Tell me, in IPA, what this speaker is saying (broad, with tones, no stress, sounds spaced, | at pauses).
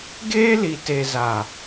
ɡ eː˦ l i˨ t e˨ z a˨